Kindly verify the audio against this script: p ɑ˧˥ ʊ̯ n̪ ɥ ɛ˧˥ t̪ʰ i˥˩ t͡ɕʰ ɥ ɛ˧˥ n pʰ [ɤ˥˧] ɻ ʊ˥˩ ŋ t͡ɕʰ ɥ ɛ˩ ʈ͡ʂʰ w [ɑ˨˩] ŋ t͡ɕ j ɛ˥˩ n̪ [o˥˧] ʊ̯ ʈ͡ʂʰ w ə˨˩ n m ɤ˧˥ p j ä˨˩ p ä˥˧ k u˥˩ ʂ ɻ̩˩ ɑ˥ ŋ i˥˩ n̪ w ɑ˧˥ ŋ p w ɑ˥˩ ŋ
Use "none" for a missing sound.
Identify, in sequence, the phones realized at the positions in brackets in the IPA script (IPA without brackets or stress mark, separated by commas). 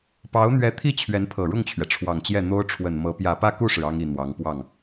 ɤ˨˩, ɑ˨˩, o˥